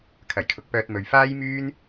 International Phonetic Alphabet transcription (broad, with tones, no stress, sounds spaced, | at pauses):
kʰ ɐ˨˩ j kʰ ʊ˨˥ k̚ p œː˧ t̚ m ɵ˨ ɥ f aː˥ j m yː˥ n